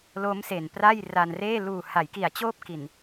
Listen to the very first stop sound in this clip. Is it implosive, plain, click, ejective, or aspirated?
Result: plain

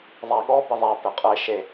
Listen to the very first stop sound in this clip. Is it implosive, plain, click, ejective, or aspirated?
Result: implosive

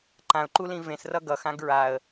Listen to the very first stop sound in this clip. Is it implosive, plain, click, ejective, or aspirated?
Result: click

